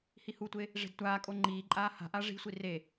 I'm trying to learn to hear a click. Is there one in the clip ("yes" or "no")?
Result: yes